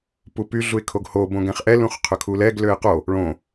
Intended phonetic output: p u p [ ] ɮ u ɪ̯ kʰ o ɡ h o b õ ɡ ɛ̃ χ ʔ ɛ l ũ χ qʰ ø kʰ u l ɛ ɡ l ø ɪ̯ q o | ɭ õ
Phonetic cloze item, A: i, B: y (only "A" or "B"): B